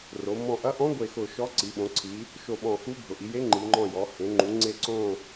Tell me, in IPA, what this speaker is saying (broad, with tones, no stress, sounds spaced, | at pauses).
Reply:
r o˩˧ m ɔ̃˧˩ ʔ ɐ˧˥ ʔ ɔ̃˧˥ ɡʷ e˧˩ x ʊ˧˩ ʃ ɔ˧˥ ǀ i˩˧ ɓ õ˩˧ ǀʰ i˩˧ | ʃ o˧˩ ɓ ɔ̃˧˩ x u˧˥ bʱ ʊ˩˧ ʔ i˩˧ j e˧˥ ŋ͡ǃ i˩˧ ŋ͡ǃ ɔ̃˧˩ j ɔ˩˧ h ẽ˩˧ ŋ͡ǃ ũ˩˧ ŋ͡ǀ e˧˩ ǀ õ˧˩